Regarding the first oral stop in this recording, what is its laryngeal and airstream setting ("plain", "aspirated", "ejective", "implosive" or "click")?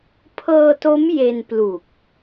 aspirated